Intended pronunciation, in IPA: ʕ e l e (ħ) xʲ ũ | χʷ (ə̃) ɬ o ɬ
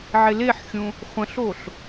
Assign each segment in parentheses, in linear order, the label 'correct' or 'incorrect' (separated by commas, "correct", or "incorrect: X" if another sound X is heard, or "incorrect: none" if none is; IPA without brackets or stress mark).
correct, correct